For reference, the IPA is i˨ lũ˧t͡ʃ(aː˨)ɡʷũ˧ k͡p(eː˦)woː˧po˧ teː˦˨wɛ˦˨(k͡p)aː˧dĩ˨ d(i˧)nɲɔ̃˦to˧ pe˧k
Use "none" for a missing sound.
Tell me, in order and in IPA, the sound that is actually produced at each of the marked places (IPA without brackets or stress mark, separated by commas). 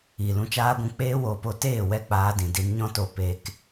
aː˧, eː˦, k͡p, i˧